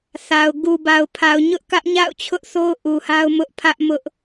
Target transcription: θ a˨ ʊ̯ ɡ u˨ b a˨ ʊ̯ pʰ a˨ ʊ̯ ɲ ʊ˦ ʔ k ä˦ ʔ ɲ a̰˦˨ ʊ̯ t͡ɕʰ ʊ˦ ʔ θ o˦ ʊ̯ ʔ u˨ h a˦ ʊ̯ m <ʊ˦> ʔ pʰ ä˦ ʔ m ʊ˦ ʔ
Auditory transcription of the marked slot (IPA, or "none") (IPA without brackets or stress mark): ʊ˦